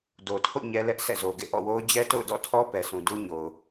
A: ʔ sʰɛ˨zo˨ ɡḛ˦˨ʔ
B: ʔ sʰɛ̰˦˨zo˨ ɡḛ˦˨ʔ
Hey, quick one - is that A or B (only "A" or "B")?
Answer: B